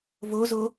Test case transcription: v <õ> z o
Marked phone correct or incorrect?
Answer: incorrect